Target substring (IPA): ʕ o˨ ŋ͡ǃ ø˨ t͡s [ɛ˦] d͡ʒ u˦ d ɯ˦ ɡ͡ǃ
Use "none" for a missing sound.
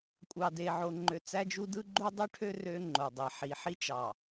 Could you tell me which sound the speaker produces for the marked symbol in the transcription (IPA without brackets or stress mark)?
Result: æ˦